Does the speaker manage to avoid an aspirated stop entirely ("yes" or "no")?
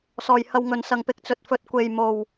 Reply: yes